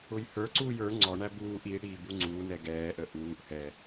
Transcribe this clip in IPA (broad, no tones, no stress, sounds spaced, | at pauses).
ʊ j h ə˞ ǀ uː j ə˞ ŋ͡ǀ ɔ ɳ æ b uː ʔ i ɽ i b u ŋ͡ǀ uː n ɛ ɡ ɛː ʔ ə ʔ uː ʔ h ɛ